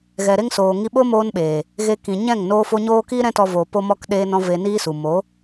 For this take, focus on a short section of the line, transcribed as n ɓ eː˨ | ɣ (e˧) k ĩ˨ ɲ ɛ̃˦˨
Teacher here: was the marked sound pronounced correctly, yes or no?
yes